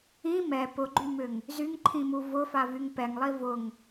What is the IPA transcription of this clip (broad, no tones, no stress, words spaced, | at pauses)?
ĩ mɛ pʊɡ͡ǃymʏŋ | zyŋǃʰĩmu vʊfavyŋ pɛŋlˠi vʊŋ